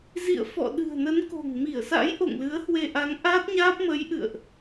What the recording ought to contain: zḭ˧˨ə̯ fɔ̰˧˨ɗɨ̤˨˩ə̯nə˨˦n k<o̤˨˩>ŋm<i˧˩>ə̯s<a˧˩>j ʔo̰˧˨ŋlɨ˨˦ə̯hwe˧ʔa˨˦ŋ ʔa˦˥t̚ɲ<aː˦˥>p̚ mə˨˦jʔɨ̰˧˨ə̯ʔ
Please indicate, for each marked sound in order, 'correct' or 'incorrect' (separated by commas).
correct, correct, incorrect, correct